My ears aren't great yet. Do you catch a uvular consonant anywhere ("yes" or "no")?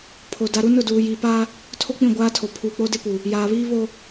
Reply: no